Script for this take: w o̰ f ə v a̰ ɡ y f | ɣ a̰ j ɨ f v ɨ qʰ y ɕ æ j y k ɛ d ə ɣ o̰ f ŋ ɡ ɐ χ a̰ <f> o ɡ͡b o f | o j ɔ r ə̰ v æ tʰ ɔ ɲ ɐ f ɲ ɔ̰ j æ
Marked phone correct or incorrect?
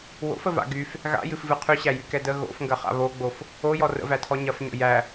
incorrect